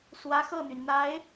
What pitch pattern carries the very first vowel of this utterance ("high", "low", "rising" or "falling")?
rising